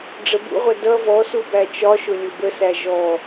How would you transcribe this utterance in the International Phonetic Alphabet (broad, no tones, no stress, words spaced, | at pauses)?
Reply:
ɖ͡ʐəbṵʁʷʌ dʌ vɔsu bæt͡ʃɒʃʊ lʲʊbəsæ ʒɔ